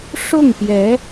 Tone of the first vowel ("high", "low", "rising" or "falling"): falling